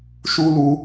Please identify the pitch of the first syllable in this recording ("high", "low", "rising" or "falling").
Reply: high